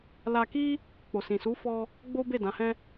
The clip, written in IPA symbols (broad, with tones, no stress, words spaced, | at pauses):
la˧ki˦ | k͡po˨sĩ˨ su˨˦fɔ˧ | ɡ͡bo˦be˦˨ dã˨˦hɛ̃˦